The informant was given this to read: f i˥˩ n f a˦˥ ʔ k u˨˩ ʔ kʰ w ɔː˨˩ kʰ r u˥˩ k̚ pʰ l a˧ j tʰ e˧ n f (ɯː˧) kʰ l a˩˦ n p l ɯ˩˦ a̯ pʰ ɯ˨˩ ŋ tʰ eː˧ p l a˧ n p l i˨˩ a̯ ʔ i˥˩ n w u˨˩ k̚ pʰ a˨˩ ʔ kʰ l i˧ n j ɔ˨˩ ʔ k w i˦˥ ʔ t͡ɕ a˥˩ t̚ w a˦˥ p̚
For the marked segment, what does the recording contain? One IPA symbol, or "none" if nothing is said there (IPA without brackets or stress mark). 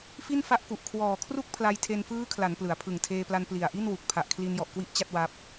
ɯː˦˥